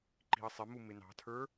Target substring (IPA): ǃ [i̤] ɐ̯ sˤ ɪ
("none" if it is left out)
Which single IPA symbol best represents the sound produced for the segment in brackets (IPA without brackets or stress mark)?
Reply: i̤